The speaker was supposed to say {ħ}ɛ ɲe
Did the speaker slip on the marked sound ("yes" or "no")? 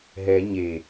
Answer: yes